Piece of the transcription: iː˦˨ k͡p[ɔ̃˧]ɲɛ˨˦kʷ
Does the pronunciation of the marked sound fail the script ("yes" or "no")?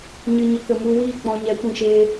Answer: no